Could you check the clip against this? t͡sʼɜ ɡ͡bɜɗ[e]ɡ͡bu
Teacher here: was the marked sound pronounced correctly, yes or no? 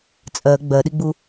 no